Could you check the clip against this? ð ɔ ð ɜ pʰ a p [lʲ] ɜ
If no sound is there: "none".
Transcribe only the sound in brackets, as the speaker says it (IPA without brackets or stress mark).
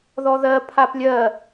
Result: lʲ